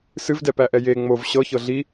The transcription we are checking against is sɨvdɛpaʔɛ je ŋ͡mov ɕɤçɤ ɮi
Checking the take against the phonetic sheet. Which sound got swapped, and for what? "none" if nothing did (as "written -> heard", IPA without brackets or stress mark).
a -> æ